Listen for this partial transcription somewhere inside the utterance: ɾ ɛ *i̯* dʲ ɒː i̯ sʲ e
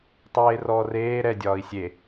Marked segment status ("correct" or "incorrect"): incorrect